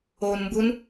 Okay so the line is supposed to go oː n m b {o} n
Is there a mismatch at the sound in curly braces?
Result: yes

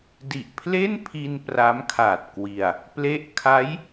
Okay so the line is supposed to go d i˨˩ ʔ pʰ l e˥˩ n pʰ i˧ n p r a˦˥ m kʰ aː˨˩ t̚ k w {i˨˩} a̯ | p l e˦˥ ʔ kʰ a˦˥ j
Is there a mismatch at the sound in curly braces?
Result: no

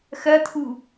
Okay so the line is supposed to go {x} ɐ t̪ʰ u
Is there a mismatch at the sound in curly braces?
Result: no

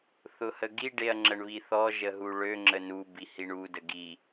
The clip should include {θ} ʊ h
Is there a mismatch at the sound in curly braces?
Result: no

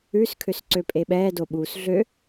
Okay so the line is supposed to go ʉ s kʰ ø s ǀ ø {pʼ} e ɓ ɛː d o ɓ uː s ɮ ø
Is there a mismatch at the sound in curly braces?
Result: no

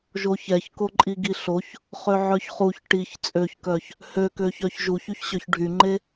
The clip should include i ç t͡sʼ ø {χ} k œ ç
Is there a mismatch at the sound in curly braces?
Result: yes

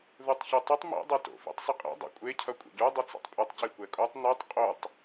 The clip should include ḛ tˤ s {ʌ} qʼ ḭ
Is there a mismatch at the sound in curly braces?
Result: no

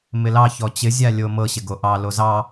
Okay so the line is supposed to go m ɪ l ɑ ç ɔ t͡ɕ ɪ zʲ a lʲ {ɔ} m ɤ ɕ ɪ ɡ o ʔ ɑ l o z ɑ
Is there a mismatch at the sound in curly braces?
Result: yes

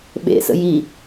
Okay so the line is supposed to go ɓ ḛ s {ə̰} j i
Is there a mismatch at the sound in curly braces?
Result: no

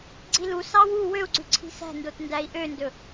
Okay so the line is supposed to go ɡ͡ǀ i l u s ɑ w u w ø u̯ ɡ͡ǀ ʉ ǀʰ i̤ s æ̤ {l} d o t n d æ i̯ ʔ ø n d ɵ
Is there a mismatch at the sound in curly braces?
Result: yes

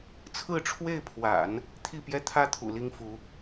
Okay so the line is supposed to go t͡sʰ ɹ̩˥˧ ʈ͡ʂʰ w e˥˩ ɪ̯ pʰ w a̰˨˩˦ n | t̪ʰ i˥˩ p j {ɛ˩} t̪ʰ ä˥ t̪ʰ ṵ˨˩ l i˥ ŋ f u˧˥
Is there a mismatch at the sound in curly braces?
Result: yes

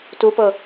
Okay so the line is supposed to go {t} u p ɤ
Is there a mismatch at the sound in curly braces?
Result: no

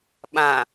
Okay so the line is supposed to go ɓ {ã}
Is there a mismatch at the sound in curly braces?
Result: no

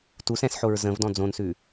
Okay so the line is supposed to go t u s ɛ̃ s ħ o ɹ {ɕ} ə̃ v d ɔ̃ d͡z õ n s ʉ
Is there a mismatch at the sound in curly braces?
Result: yes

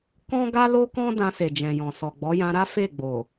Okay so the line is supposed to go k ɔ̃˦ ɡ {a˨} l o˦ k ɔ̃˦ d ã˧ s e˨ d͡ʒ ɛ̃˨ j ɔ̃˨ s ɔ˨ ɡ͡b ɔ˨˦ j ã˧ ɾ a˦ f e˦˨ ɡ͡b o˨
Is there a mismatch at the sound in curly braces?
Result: yes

